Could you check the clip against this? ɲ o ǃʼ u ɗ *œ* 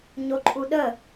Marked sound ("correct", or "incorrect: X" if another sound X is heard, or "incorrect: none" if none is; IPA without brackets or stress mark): incorrect: ə